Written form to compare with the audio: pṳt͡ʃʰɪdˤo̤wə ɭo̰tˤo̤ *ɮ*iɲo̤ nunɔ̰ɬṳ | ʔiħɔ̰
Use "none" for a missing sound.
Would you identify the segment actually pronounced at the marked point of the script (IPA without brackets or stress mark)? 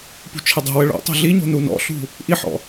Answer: ɮ